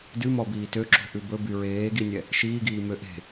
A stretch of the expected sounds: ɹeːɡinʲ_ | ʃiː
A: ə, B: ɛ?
B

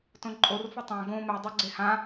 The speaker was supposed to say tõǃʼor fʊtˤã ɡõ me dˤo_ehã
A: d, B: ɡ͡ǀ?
B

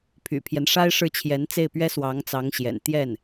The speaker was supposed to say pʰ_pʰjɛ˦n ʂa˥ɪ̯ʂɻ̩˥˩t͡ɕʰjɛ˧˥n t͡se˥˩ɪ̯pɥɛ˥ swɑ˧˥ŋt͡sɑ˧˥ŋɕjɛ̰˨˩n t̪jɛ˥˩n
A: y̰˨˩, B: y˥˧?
A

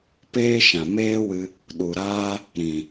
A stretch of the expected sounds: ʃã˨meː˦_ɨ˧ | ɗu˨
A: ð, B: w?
B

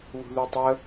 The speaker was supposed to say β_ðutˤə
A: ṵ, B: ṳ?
B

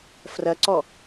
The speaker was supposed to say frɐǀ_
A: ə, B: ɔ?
B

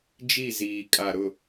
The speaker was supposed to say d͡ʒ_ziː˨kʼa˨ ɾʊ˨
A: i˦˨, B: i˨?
A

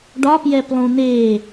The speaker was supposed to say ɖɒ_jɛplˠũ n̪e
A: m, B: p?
B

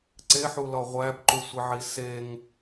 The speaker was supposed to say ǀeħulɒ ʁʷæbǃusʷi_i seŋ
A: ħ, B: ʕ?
B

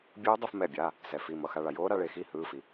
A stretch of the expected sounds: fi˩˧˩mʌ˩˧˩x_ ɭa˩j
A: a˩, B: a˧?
B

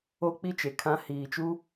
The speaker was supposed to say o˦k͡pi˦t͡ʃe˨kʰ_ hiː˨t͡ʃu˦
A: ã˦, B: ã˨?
A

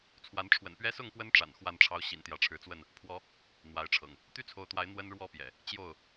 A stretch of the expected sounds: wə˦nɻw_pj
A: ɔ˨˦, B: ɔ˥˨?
B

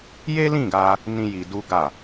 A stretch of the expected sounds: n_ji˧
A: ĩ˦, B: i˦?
A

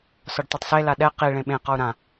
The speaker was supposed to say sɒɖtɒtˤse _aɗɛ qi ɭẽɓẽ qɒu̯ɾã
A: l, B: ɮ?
A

